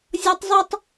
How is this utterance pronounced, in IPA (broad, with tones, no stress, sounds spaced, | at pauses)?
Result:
zʲ ɔ˥ tˤ zˤ ə˞˥ tˤ